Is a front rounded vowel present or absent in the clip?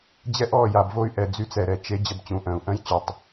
present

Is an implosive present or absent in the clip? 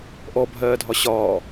absent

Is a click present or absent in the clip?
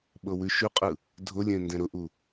absent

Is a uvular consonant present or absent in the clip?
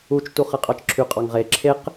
present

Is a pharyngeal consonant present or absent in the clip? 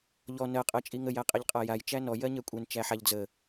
present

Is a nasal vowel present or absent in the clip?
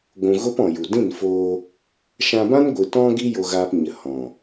present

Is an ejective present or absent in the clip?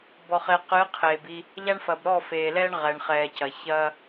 absent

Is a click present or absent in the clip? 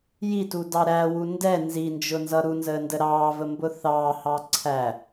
present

